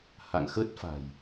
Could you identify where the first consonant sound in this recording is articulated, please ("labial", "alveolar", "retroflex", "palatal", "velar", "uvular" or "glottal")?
glottal